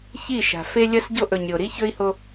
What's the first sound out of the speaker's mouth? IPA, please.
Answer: ç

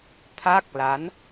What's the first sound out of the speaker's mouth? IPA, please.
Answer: t̪ʰ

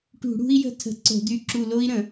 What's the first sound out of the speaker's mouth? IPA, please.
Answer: ʈ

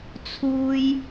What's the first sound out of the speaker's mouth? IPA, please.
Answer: t͡sʰ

